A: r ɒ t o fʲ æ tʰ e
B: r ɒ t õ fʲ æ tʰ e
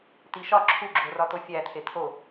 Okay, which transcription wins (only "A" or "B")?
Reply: A